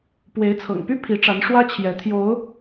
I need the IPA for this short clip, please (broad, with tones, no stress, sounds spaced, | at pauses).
p w e˨˦ ɪ̯ t͡sʰ ɤ̰˨˩ ŋ p y˦ pʰ i˨˦ ʈ͡ʂ a˨˦ n ʂ w ä˦ t͡ɕʰ j ɛ˨˦ t̪ʰ j o˨˦ ʊ̯